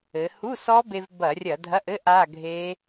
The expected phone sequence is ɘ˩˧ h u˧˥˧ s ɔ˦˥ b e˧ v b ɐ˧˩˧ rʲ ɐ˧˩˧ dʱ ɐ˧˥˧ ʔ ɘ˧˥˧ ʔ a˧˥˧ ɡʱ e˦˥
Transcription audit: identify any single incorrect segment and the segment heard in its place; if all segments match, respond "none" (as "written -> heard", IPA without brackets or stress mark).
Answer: none